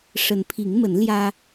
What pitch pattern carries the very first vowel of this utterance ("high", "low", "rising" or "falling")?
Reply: rising